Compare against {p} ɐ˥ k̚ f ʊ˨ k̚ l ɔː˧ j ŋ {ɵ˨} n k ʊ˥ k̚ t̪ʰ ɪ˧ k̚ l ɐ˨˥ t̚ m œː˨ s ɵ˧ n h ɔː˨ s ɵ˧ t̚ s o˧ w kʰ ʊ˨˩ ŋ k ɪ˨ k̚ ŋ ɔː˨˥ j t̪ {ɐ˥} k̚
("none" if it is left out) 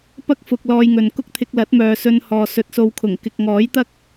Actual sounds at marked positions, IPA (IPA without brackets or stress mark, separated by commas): p, ɵ˨, ɐ˥